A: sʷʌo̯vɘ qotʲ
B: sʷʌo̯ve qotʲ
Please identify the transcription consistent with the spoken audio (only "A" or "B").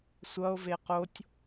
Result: B